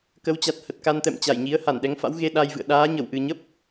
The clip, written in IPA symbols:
kə˨˦wt͡ɕa˨˩t̚ hə˨˩t̚ka˧nt̪ɛ̰˧˨m t͡ɕa˧˩jɲi˨˦ə̯ ha˧˩nɗɛ˨˦ŋfa̰˧˥w ɣe˧ɗa˧jvɨ̰˧˨ə̯ ɗaː˨˦ɲə˧˩w ʔɨ˨˩ɲə˦˥p̚

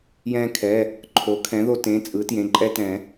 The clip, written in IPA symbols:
jɛ̃˧kʰɛ˩˧˩ | ǃʰo˩˥kʰɛ̃˩˥ðo˧ tẽ˩˧˩t͡sʼɯ˩˥tjẽ˩˧˩ ǃʼɛ˧tɛ̃˨˩˦

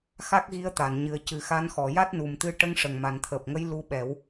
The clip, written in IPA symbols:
xa˦˥k̚ɣi˧˥ə̯t̪a˨˩˨nɲɨ˨˩ə̯ cɨ˨˩xa˧˥nxɔ˨˩˨ ja˦˥t̚nu˨˩mt̪ɨ˧˥ ʈə˧˥ŋʂə˨˩ŋma˨˩nt̪ʰəː˨˩p̚ ŋə˧˥j lu˧˥ɓɛ˨˩˦w

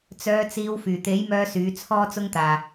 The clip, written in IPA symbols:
t͡sœː˨˧t͡siː˨˧w fyː˨˩t̪e˨˥jmœː˧ syː˨˥t͡sʰɔː˥t͡sʊ˥ŋt̪aː˨

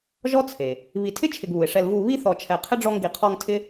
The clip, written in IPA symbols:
ʒɔ˥t͡sʰe˩ | βi˨ tʰɪ˥t͡ʃʰɪ˨ɡβu˩ɪ̯ʂɛ˨l vu˨ βi˥θɔ˨ t͡ʃʰɛ˨qʰɪ˥ɖ͡ʐɔ˦ŋ ɡi˨qʰɔ˦ŋtʰɪ˥

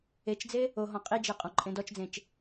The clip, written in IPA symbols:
et͡ʃd͡ze | oɦɔ̃ qʼid͡ʒe qʼɔ̃ǃʼẽdɔt͡ʃd͡zẽt͡ʃ

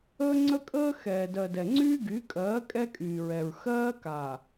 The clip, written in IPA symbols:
əː˦ŋ͡ǀə˦kʼəː˦ xɛː˨ dɜ˨ dɛ˨ŋ͡ǀyː˦ ɡy˨˦kʼɜː˨˦ kʼɛ˦kʼyː˨ɹɛ˨ɹ xɜː˦kaː˨

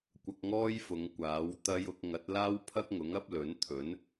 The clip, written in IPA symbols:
kʷɐ˧k̚ŋɔː˥j fʊ˨˧ŋkʷaː˨˥wt̪ɐ˥j ʊ˧k̚ ŋɐ˨˥t̚laː˥wpʰɐ˥k̚ŋʊ˨˥ŋ ɐ˥p̚lɵ˨˥nt̪ʰɵ˨˥n

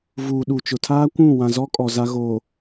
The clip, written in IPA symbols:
vuː˨ɗu˨ t͡ʃʊ˨tʰaː˦kʷũ˦˨ wã˨zɔ˦ kʼɔ˨ za˦ ɣo˨

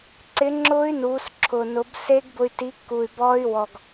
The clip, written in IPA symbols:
ǀɪ˨˥ŋ͡ǁʊː˦˥y̯nuː˩˧s ǁʰʊː˨˩ nʊ˩˧bse˦˥ɡ bʊ˧y̯ti˨˥kːu˨˩y̯bɔː˦˥y̯ wɔ˨˩ɡ

